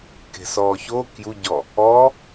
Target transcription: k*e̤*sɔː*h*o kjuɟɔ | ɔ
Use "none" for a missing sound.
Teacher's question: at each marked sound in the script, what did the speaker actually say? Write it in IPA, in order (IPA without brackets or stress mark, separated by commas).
e̤, ç